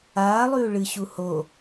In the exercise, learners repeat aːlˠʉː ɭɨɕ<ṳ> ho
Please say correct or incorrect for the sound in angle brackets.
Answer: incorrect